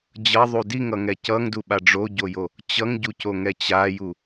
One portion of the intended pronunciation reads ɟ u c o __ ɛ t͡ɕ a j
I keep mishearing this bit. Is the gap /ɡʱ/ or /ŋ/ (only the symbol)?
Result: ŋ